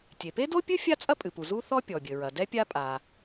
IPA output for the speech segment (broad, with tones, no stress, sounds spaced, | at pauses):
tʲ e˩ p e˥ d o˥ pʲ ɨ˥ fʲ a˥ t͡sʼ ɐ˥ pʼ ɨ˩ p u˩ z u˥ θ ɔ˥ pʲ ɔ˩ bʲ ɘ˩ ɹ ɐ˩ d ɛ˥ pʲ a˥ pʼ a˩